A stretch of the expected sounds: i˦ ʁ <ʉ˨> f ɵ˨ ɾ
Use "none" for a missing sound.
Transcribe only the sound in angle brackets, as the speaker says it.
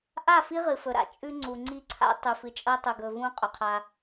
ɨ˨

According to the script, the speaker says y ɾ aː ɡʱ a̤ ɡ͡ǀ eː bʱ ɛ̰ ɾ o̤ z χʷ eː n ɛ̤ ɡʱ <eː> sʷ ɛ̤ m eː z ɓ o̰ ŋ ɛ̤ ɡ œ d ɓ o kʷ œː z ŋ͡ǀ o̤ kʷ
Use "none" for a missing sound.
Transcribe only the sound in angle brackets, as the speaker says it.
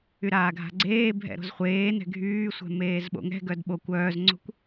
yː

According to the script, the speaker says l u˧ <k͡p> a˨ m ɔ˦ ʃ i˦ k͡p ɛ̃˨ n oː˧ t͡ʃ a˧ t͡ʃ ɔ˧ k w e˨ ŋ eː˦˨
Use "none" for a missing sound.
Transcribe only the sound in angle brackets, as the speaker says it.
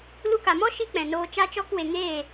k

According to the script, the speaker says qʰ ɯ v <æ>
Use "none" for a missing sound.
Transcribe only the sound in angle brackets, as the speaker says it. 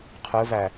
æ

